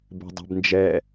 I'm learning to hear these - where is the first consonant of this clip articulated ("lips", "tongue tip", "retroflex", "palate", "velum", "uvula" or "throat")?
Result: lips